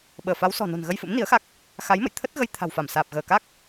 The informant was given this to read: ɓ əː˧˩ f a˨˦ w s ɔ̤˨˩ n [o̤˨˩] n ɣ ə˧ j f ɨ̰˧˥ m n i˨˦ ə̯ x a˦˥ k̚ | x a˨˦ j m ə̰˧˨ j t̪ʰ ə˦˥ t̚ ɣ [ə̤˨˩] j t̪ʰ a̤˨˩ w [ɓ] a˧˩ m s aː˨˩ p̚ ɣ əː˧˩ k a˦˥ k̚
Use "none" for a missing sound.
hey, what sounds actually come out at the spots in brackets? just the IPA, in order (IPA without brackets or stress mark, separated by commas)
o̤˨˩, ə˧, f